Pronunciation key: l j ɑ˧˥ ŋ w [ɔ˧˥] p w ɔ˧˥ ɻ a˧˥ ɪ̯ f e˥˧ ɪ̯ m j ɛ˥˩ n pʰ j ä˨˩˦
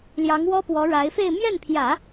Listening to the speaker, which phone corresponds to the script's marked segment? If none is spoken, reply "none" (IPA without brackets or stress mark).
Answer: ɔ˥